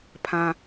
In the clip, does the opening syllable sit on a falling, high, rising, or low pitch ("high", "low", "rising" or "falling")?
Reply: low